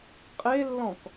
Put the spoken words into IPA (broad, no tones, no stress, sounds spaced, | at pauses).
qʼ e lː ɔ̃ k